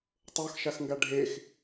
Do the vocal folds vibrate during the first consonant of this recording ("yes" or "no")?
no